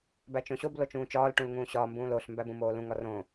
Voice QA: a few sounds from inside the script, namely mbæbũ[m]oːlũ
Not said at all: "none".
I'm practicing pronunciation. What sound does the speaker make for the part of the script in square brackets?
m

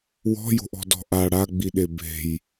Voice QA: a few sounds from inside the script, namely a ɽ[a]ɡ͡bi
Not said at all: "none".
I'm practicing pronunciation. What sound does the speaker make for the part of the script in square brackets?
a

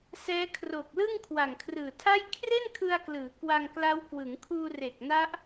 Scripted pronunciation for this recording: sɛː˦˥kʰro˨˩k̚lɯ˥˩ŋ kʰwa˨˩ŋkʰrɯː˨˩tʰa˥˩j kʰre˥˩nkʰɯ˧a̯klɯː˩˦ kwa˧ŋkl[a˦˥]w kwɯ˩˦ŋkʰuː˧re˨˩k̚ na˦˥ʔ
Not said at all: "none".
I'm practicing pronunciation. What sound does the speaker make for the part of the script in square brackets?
a˦˥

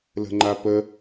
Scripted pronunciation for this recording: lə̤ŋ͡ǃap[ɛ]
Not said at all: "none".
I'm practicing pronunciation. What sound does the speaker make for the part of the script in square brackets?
ə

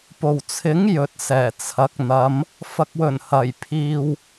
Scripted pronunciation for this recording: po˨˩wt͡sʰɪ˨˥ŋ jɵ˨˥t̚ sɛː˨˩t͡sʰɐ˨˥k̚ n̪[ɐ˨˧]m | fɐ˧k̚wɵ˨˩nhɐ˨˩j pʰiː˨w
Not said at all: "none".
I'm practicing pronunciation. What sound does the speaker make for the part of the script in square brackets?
ɐ˨˧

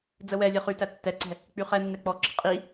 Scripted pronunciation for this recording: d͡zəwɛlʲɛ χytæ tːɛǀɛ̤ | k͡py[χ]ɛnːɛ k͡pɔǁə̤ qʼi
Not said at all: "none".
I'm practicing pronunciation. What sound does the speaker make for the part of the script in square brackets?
χ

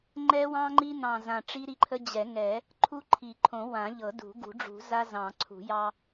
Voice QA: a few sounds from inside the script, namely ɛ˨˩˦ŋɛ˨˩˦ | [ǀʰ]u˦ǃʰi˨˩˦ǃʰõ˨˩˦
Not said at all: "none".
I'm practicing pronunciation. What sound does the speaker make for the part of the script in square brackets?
ǃʰ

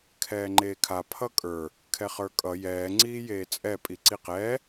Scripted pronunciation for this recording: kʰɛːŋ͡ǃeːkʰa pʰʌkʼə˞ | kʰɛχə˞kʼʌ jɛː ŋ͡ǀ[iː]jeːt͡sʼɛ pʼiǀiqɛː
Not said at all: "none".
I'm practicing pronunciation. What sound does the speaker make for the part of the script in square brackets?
iː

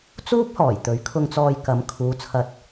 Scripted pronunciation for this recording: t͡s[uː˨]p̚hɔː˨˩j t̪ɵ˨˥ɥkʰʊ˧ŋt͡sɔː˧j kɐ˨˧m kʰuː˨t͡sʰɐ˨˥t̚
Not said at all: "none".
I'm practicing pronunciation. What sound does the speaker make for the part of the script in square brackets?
uː˥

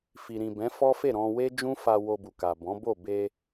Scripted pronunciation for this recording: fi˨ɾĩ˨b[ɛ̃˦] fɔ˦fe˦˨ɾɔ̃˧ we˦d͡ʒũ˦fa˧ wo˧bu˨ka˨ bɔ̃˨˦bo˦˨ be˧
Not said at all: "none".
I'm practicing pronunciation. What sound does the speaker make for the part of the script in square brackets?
ɛ̃˨˦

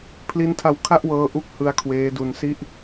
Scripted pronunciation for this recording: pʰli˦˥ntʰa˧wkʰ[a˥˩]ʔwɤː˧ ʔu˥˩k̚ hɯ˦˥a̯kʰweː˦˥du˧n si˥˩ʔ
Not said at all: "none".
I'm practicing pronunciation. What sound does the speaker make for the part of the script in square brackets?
a˥˩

